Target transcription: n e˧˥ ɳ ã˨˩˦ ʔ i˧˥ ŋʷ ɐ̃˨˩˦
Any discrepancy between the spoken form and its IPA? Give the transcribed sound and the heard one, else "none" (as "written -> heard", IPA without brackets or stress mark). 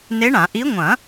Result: none